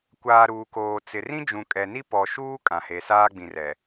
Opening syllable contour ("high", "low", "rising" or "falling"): low